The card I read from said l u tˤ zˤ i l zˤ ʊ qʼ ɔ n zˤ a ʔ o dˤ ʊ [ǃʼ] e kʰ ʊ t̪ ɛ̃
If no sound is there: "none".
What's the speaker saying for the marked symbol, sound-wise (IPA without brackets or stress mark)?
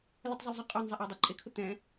ǃʼ